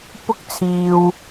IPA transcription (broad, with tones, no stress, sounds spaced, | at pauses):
p ʊ˥ k̚ t͡sʰ iː˨ w